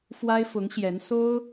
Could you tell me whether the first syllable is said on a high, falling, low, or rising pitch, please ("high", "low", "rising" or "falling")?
high